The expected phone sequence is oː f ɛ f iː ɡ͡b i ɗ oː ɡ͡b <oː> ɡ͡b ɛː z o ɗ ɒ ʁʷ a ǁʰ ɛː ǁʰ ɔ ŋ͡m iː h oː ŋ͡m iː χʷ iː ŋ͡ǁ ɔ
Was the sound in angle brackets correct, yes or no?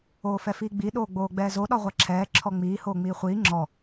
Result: yes